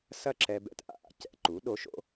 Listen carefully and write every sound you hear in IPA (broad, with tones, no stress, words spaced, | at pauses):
sɐ˥˩ǁɛ˧ bɛ̰˧tʔa̰˥ ʔa̰˩˥cɛ̰˧ǃu˩˥ ɗo˩˥ʃ o̰˥